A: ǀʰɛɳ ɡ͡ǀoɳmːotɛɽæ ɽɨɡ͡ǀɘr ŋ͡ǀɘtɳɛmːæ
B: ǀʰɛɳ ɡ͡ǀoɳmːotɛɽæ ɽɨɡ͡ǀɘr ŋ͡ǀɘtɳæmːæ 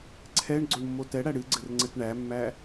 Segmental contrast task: B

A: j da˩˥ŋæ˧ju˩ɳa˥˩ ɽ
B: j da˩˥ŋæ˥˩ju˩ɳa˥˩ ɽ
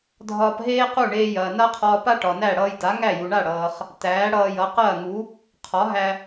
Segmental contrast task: B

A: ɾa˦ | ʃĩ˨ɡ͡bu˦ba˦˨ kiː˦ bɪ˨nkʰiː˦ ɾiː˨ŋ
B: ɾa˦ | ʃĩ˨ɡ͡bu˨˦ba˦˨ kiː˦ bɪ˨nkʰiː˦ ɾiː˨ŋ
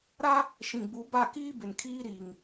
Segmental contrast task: B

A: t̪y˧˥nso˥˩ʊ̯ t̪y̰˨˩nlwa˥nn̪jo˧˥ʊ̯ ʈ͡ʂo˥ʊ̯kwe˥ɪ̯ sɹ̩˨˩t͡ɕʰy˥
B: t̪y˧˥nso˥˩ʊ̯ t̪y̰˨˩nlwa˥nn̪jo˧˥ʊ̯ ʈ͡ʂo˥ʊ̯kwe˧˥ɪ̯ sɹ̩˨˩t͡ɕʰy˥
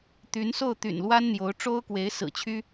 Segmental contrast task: B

